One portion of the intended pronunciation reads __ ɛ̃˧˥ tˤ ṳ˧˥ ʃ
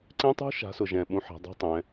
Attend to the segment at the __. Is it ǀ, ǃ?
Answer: ǀ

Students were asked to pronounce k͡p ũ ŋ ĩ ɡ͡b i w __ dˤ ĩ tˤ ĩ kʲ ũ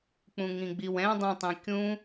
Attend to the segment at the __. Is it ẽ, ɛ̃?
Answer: ɛ̃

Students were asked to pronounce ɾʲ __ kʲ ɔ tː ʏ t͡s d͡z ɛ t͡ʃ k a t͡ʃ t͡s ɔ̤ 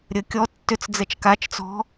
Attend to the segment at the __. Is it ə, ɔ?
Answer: ə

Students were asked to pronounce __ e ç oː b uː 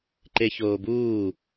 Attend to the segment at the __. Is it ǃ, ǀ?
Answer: ǃ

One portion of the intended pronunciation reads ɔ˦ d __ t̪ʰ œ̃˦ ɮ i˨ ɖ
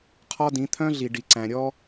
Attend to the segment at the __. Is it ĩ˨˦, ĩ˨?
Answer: ĩ˨˦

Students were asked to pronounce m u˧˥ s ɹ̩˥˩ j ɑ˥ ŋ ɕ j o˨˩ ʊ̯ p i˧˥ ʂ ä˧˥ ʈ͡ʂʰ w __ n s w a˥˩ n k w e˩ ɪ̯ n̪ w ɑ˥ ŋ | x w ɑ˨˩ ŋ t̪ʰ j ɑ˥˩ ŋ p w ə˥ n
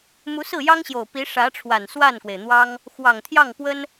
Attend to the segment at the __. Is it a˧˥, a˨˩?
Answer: a˨˩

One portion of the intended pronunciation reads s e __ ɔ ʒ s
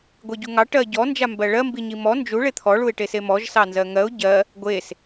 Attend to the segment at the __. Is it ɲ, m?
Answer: m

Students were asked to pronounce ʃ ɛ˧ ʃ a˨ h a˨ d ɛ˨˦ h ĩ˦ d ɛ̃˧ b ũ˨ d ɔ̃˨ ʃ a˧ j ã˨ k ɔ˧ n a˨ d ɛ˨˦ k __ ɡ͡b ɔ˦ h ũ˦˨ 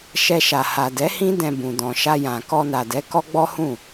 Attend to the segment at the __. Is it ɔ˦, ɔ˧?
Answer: ɔ˦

